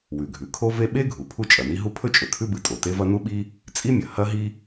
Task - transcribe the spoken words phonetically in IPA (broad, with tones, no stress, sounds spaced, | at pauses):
w ʉ˩ ɡʱ ʉ˩ kʰ o˥ v e˥ ɓ e˥ ɡʱ u˩ pʰ u˥ t͡ʃʼ ɐ˩ n i˥ ɦ u˥ pʰ ɵ˥ t͡ʃʼ ɵ˩ kʰ ʉ˥ b ɨ˩ tʼ o˩ t e˥ v ɐ˥ n u˥ ɓ i˥ | t͡sʼ i˥ mʲ ɐ˩ h ɐ˥ ɦ i˥